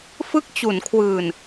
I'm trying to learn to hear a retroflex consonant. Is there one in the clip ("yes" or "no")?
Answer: no